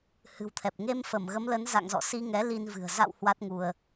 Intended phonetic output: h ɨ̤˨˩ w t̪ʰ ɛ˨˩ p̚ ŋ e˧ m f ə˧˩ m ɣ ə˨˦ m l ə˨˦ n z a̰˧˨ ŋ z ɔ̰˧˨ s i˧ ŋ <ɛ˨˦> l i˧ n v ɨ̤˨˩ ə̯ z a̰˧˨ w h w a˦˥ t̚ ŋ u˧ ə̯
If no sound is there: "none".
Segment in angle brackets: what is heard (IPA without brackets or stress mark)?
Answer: ɛ˨˦